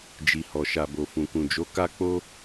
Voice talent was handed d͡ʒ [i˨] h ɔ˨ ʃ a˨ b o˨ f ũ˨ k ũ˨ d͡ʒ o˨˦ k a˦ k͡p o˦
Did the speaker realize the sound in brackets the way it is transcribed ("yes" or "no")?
yes